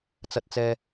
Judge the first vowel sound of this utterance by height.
low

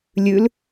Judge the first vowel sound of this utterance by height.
high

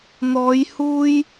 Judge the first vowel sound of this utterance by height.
mid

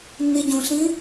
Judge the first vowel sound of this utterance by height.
high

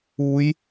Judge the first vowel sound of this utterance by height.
high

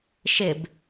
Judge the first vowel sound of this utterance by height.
high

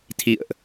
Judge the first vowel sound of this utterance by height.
high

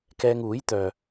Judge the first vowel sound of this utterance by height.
mid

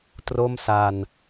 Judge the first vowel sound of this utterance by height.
mid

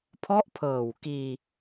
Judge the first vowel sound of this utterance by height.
mid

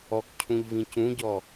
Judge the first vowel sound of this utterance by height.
mid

